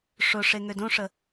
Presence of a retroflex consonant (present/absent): present